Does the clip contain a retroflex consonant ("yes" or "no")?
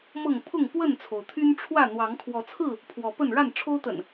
yes